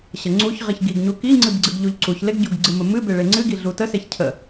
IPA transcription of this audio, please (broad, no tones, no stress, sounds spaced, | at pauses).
ɕ ə ŋ͡ǀ u ç ʁ i ç ɡ i ɡ ɲ u k i ŋ͡ǀ ɨ b ɡ͡ǀ ɨ ɡ ʎ u ʎ ǀ u ç l e ɡ ɟ u ɡ ɡ͡ǀ ɨ m ə m ɨ b e ɭ e ŋ͡ǀ ɨ ɡ i ɮ u t ə s e ç cʰ ə